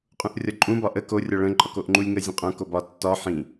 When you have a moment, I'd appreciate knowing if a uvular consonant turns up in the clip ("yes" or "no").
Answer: yes